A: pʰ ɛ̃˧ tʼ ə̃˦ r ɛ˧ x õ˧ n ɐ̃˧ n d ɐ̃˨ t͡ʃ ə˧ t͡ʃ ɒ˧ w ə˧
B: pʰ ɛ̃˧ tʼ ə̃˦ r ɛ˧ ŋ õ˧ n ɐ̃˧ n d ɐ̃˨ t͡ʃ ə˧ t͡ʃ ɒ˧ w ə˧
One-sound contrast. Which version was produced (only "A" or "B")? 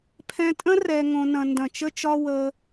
B